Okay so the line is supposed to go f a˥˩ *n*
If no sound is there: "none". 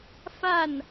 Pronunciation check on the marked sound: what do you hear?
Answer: n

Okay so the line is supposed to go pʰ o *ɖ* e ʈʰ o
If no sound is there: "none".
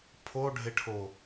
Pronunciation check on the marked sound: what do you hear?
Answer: ɖʱ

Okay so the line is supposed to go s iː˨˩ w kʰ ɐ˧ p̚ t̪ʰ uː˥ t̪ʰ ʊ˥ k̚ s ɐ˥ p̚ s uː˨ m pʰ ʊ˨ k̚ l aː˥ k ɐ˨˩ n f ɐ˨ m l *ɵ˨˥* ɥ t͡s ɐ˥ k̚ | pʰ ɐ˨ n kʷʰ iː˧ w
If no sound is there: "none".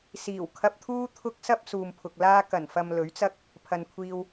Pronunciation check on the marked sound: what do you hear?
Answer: ɵ˨˥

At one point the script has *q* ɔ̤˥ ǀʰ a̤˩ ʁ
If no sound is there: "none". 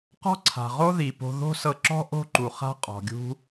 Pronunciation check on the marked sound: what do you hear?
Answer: q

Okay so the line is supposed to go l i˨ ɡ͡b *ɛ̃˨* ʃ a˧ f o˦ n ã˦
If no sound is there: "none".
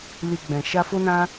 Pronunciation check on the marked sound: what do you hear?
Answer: ɛ̃˨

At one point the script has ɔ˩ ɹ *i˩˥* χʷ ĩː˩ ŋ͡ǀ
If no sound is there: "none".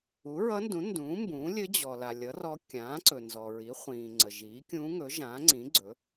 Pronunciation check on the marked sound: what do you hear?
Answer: i˩˥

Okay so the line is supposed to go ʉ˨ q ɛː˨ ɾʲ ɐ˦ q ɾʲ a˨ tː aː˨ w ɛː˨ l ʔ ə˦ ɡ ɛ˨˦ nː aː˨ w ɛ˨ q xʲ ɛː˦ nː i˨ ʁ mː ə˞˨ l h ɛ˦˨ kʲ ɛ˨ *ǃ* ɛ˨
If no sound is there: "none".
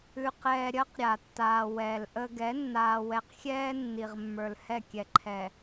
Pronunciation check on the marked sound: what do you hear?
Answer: ǃʰ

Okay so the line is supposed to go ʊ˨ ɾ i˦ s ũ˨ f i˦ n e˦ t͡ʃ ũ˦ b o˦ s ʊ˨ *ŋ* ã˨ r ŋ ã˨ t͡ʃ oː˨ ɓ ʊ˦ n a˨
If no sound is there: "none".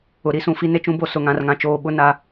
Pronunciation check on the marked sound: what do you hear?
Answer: ŋ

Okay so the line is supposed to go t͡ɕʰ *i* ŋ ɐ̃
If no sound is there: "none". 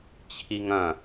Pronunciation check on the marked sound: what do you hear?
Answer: i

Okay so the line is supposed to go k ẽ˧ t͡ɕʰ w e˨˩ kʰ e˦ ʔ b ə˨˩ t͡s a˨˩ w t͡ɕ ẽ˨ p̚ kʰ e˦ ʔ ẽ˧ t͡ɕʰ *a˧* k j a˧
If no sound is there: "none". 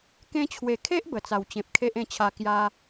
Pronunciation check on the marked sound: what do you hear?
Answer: a˧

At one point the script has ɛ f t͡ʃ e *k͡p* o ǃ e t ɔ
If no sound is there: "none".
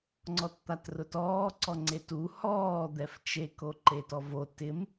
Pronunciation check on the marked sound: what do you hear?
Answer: k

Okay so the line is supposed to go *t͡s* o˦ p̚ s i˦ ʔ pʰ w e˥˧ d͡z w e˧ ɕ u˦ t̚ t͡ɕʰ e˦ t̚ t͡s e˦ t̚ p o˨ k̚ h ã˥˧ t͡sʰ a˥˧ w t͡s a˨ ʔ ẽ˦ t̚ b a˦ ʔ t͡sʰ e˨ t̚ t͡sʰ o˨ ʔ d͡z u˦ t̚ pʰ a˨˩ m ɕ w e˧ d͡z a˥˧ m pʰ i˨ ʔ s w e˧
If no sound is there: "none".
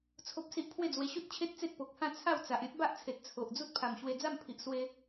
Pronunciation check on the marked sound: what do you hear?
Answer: t͡sʰ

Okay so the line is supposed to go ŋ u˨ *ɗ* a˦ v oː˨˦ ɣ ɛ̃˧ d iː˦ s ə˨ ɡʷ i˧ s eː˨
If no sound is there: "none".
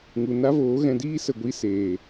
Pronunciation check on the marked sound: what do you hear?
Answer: n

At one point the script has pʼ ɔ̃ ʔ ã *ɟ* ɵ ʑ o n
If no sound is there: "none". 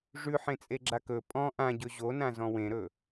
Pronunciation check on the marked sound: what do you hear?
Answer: ɟ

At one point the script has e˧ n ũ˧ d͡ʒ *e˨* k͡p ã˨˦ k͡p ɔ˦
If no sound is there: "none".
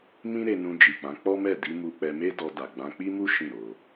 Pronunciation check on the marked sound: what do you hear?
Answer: i˨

